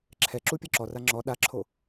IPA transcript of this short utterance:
ǁʰɛ ǁupʲɤǁɔra ŋ͡ǁɔ ɗaǁʰo

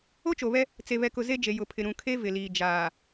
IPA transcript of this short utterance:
o˦t͡ʃo˨ βɛ˦ | t͡se˨βɛ˨kʊ˨ ze˦d͡ʒe˨ jʊ˨pʰɪ˨ ɾũ˨kʰe˦ vɪ˨liː˨ d͡ʒaː˨

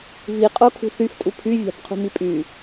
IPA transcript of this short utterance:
viqʼokʰṳ θyftʼu pʰyvʲa̤b qʰṳmipʼy

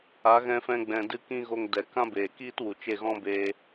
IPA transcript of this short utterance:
a˨˦ɣɛ̃˧fɛ̃˧ ɡ͡bɛ̃˨dɨ˧ kĩ˦ɣo˧ŋ dɛ˨kã˦ beː˨kiː˦t wu˨t͡ʃe˦˨ɣɔ̃˦ be˧

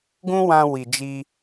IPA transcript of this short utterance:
ɡũ˦wã˧ wi˨d͡ʒi˧

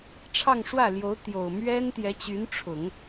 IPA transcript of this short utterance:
ʈ͡ʂʰɑ˥˧ŋʂwä˥˩ljo˧˥ʊ̯ t̪jo˨˩ʊ̯ mɥɛ˥n t̪jɛ˧˥t͡ɕy˧˥nʈ͡ʂʰʊ˨˩˦ŋ

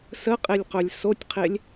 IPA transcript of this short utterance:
səqʼelʲqœlʲ sotʲqʰelʲ

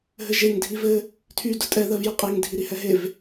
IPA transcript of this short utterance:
ɦɘʒeŋ dʱivɘ | tʰy dʊtʼɛ ðɜvjʊqʼeŋ dʱiɾihɛɦev

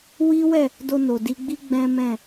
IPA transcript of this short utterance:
wi˦wɛ˦˨ | do˧no˨di˧ɡ͡bi˦ ɡ͡bɛ̃˦mɛ̃˦˨

